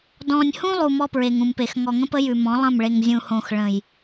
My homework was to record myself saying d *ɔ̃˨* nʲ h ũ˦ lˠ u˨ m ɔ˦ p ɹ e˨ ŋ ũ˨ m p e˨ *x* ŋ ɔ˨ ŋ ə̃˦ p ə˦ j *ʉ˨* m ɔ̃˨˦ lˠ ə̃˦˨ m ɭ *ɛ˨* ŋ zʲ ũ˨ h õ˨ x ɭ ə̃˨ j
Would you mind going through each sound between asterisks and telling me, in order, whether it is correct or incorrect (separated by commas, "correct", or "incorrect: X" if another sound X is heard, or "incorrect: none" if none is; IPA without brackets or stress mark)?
correct, correct, correct, incorrect: e˨